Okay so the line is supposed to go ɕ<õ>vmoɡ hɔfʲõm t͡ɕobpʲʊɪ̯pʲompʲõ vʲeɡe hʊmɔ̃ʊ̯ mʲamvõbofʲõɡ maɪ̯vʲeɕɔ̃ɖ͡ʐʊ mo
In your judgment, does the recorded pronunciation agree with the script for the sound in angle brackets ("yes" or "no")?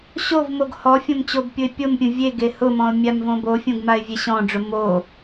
no